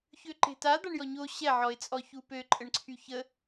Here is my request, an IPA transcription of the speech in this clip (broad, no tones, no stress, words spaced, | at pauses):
çøǃe̤ta d̪aɳjɔɲo ɕɛ ʕɔɪ̯t͡sʼɔçupø ǃʼəɳǀʰyçə